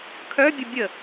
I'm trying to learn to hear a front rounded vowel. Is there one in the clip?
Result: yes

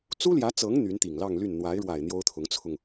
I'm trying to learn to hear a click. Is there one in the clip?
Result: no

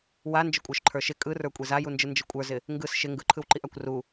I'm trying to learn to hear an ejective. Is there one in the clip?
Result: yes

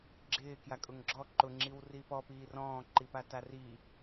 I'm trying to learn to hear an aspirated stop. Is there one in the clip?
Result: no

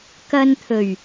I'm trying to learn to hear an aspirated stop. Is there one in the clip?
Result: yes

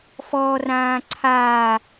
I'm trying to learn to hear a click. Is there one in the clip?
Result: yes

